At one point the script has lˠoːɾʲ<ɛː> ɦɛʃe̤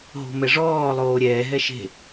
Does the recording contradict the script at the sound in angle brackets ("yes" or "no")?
no